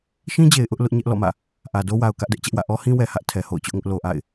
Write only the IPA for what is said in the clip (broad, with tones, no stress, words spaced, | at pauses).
ʃĩ˦d͡ʑe˨ɪ̯ ʔʊ˦ʔ lʊ˦ʔɲɛ˦ʔlɔ̰˦˨mä̰˦˨ | ʔä˨do˦wa˨ʊ̯ kä˦ʔdɛ˦ʔt͡ɕɛ˦ʔwä̰˦˨ ʔɔ˦hĩ˦wɛ˨ hä˦ʔ tʰɛ˨ho̰˦˨ʊ̯t͡ɕʊ˦ʔŋʊ˦ʔ lo˨ʔa̰˦˨ɪ̯